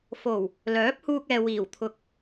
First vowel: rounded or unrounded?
rounded